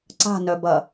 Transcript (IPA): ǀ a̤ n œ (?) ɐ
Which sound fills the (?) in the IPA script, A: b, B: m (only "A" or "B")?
A